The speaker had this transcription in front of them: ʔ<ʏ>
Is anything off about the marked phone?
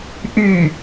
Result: yes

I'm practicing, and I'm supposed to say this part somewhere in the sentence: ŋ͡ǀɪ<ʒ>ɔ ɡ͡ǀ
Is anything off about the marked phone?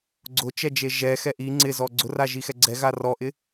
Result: yes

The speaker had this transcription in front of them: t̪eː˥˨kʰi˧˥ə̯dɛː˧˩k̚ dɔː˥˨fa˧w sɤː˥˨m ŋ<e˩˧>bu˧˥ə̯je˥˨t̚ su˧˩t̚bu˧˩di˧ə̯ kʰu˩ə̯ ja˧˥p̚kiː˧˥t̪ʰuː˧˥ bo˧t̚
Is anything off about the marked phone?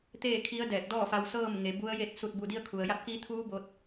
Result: no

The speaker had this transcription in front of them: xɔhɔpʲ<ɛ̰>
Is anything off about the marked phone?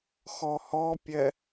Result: yes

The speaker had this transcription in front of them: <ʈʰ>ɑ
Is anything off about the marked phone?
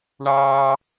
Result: yes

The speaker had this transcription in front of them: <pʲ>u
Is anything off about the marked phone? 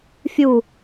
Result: yes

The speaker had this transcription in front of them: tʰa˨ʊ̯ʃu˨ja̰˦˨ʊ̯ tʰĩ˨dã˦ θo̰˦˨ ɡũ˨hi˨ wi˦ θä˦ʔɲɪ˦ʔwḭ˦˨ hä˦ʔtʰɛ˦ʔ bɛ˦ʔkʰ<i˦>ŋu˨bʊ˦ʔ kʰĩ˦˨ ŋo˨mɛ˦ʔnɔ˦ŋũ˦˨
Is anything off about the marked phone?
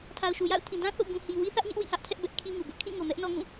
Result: no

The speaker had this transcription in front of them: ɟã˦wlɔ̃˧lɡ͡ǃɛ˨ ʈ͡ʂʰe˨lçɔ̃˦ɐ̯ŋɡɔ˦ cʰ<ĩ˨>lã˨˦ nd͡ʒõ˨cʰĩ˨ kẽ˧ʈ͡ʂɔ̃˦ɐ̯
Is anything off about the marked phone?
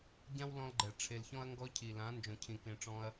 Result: yes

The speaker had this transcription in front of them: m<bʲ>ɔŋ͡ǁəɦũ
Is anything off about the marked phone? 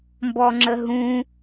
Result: yes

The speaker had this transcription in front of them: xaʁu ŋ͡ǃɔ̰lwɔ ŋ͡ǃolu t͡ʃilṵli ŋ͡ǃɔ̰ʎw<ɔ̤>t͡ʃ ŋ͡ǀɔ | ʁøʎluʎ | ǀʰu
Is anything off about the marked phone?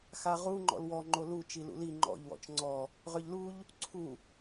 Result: yes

